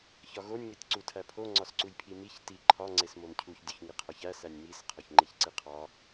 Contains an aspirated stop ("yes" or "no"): yes